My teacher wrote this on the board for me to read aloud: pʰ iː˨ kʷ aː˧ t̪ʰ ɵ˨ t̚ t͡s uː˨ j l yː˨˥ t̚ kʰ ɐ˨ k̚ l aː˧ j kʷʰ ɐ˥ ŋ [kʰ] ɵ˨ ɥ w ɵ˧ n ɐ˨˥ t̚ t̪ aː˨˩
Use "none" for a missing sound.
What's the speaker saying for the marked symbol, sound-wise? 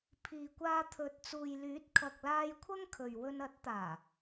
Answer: kʰ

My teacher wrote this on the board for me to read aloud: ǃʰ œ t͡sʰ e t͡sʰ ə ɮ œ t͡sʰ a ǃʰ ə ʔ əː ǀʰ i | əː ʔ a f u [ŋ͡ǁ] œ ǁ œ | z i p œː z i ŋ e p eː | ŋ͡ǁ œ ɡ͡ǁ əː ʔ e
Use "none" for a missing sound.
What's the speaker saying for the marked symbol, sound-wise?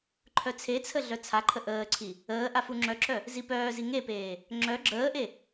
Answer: ŋ͡ǁ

